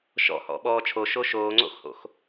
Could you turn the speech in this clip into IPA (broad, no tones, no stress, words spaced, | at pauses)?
ʃɔ̰ hɔ̰ɓɔːt͡ʃʰo ʃoʃoːŋ͡ǀo̰xho̰x